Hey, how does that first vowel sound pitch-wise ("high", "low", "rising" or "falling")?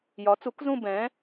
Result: rising